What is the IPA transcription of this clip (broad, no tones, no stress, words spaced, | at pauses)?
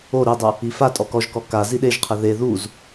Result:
o ɾidˤu | ifatʼɔ kɔʒkɔ ka ziɗeʒqʰɘ ðe ðuz